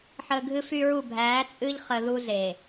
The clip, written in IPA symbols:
ħ əː˨ ɡʱ ɨ˦ f y˦ ɹ u˦˨ bʱ æː˨˦ t͡sʼ ɨ˦ ʎ χ ə˨ ð u˦ z e˨

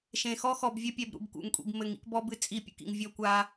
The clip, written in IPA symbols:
ʃ ẽ˨ x ɔ˦ x ɔ˨ b vʲ ɘ˦ pʲ ɛ˨ b ɾ ṵ˨ b k ṵ˨ ŋ kʷʼ ḭ˨ b m ɘ˨ ŋ ḭ˦ k b ɔ˦ b ɨ˦ t͡sʼ i˦˨ pʲ ṵ˨ k ḭ˨ ŋ vʲ ɔ˦˨ kʷ a˦

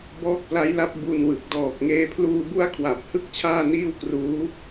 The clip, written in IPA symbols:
b ɔː˦˥ k̚ p l a˦˥ j l a˦˥ p̚ b u˧ n w ɯ˨˩ k̚ d ɔː˨˩ k̚ ŋ eː˧ pʰ l uː˧ b u˦˥ a̯ kʰ w a˨˩ p̚ h ɯ˦˥ k̚ t͡ɕʰ aː˥˩ n iː˥˩ w k r uː˦˥

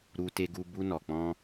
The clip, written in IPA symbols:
ɾ u˧ t e˧ ɡ u˧ b u˧ n ɔ˨ k͡p ɔ̃˧

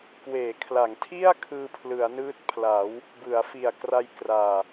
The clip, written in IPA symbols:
k w eː˩˦ kʰ l a˩˦ ŋ tʰ i˥˩ a̯ kʰ ɯː˧ pʰ l ɯ˩˦ a̯ n ɯː˦˥ t̚ pʰ l a˩˦ w | b ɯ˩˦ a̯ f i˨˩ a̯ k r a˧ j k r aː˨˩

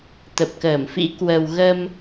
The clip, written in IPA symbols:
t̪ ə˨˩ p̚ k əː˧˩ m f ḭ˧˥ k w ə˨˩ w ɣ ə˧ m

